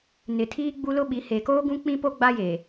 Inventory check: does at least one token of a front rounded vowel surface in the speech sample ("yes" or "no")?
no